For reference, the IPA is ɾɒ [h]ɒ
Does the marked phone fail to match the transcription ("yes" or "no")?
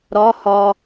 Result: no